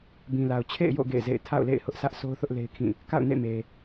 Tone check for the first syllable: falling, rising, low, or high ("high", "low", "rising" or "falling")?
low